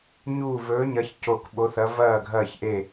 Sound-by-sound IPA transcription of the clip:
ɲ uː˦˨ v ɵː˧˥ ɲ ɐ˧˥ ç c o˦˨ k ɓ o˧˥ θ ɐ˧˥ v ɐː˦˨ ɡʱ ɐː˦˨ ç ʔ e˦˨

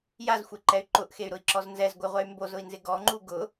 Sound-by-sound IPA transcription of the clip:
j a z xʷ e ǃ ɛ y̯ ǃ ʊ ʔ x e y̯ ɾ ʊ i̯ ǁ ɔ z n z ɛ z ɡʷ ɪ ʁʷ ɛ y̯ m b o z ʊ i̯ n z ɪ ɡ ɔ ŋ͡ǃ u ɡ ʊ

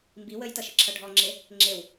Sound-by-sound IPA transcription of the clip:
m b i w ə j t ʌ ʃ ə ǁʰ ʌ ɖʱ ɔ ŋ͡ǁ e | ŋ͡ǁ e w

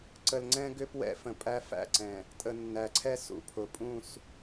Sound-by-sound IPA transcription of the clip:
ǀ ə˨ l ŋ͡ǀ ɛ̃˦ ɡ ʏ˦ p w ɛ̰˦ f ə̃˨ pʼ æ˦ f æ̰˦˨ ǀ ɛ̃˨ | tʼ ə˨ nː æ˨ ǀʰ ɛ˦ s ṵ˨ pʰ ʊ˨ pʼ ũ˦˨ s

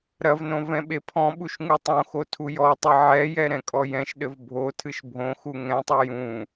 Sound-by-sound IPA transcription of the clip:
ɾ ɐ v n õ v ɛ̃ ɓ e pʰ ɔ̃ ɓ u ʃ ŋ u tˤ õ x o tʰ u j ɔ tˤ ɨ ʕ ɛ j ɛ ɾ ɛ̃ kʼ ɔ j ɛ̃ ʃ ɗ ɘ v bʱ o tʰ ɨ ʃ bʱ õ x u ŋ ɛ̃ tˤ u j ũ

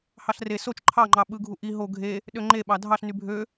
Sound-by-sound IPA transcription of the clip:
h ɑ ɬ r e s o t͡ʃ ǃʰ ɑ ŋ͡ǃ ɑ ɓ ɯ ɡʱ u ʔ i ɦ o ɡʱ e | ɗ ø ŋ͡ǃ e ɓ ɑ dʱ ɑ ɬ n y bʱ ø

